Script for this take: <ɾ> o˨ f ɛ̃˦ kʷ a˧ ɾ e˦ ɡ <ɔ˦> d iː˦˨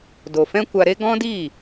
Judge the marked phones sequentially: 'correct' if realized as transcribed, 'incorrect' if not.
incorrect: d, incorrect: ɔ̃˦

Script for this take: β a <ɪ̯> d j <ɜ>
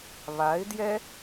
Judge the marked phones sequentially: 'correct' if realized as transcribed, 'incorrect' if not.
correct, incorrect: ɛ

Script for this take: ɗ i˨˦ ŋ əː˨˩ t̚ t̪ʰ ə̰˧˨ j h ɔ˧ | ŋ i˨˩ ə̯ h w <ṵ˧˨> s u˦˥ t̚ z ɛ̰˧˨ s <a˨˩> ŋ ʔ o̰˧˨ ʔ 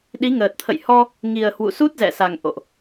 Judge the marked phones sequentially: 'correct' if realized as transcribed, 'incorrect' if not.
correct, correct

